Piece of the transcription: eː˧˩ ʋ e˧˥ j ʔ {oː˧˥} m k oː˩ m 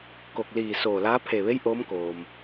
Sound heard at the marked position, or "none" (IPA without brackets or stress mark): oː˧˥